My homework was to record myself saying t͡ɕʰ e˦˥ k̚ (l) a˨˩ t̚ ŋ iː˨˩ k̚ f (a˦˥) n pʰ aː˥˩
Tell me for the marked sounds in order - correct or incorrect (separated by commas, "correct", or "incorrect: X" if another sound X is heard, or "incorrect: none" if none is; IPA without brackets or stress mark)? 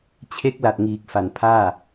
correct, incorrect: a˨˩